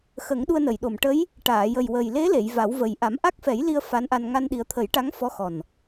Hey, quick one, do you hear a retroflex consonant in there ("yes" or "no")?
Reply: yes